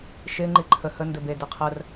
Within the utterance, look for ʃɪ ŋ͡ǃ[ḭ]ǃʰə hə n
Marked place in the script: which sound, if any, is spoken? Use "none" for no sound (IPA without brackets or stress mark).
i